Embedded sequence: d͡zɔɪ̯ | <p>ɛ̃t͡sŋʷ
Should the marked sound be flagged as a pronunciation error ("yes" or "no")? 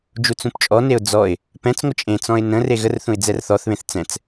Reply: no